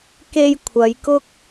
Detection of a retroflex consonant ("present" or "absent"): absent